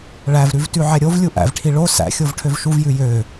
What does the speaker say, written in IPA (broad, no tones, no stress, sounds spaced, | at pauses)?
ɭ æ v ɾ ʉ v t ʉ ʕ ɛ ɾʲ o v lʲ u ʔ æ̰ v ʈʰ i ɭ o s æ̰ xʲ o v ʈʰ ø v ʃ u v j ʉ j ø